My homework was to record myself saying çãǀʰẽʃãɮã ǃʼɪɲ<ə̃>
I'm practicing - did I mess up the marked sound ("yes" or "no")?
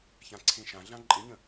no